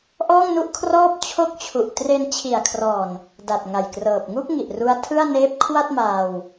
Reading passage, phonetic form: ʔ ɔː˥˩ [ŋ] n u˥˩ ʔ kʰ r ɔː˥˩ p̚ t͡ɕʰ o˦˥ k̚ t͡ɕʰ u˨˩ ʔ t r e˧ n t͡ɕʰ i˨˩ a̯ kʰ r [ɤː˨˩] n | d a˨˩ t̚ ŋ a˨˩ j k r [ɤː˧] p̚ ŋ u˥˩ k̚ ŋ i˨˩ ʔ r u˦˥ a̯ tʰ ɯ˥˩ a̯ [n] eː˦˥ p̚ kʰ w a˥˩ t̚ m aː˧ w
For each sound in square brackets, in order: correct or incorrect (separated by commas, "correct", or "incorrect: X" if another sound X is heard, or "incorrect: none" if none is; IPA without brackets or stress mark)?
correct, incorrect: ɔː˨˩, incorrect: ɤː˨˩, correct